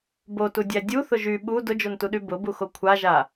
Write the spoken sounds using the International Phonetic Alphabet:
b o t u dʲ æ dʲ u θ ʊ ʒ y ɓ u d ʊ d͡ʒ o n t u ɗ y b ʊ b u x o kʷʰ a ʒ a

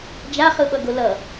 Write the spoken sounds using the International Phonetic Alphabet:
d͡ʒ a χ ɯ ɓ ʌ ɡ o l ʌ

